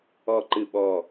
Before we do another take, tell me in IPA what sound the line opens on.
ɔ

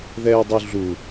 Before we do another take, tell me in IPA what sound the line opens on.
ð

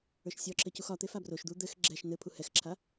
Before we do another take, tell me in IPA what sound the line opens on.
ə˞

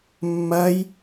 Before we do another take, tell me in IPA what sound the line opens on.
mː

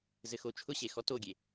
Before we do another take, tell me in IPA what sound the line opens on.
z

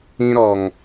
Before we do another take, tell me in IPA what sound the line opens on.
ĩ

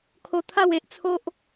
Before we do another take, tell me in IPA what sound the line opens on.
kʰ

